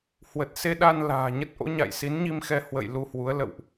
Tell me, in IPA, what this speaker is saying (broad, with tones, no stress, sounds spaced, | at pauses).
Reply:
h w ə˨˩ t̚ s e˧ ɗ a˧ n l a̤ː˨˩ ɲ ə˦˥ t̚ ʔ o̰˧˥ ɲ a̰˧˨ j s i˨˦ n ɲ i˧ m x ɛ˧ h w ə̰˧˨ j l u˧ h w u˨˦ ə̯ l ə̰˧˨ w ʔ